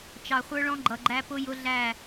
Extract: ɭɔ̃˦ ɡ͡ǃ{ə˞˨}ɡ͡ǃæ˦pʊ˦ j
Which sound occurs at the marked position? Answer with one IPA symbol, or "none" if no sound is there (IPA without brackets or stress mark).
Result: ʌ˨